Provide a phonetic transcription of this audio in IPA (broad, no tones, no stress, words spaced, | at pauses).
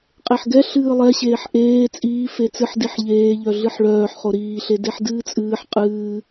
qʼeħɡɛ ɬɨːlˠɛɕeːħ ʔeː t͡sʼiː fet͡sɨħ diħʎeːʎœ ɮɨħɭœːħχo ɾiːɬe deħdɨːt͡sʼɨːħ qʼɨː